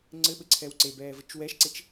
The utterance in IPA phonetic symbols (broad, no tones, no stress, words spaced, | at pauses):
ŋ͡ǀɘɓɘǀʰɛw ǀebɛːvɘt͡ʃ wɛʃǀet͡ʃ